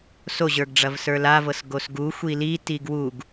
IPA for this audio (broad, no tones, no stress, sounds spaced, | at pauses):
s o ʑ ə˞ ɡ ɖ͡ʐ ɐ v s ə˞ l a v ɤ s ɡ o s ɡ u xʷ i l i t i ɡ w u ɡ